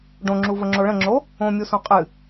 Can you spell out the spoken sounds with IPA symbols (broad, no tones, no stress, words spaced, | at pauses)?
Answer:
ɖõŋ͡ǁuvəŋ͡ǁo ɭə̃ŋ͡ǁo | õmʲusõ qʼɨ